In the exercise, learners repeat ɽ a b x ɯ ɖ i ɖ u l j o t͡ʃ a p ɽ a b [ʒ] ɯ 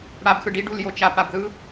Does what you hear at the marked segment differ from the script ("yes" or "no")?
yes